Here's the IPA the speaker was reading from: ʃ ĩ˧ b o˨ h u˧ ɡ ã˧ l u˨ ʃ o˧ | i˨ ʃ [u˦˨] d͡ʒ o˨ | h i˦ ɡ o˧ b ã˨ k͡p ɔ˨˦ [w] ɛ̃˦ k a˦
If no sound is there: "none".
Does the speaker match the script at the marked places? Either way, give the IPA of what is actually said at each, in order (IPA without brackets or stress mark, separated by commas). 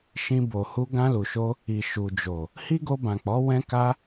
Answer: u˨, w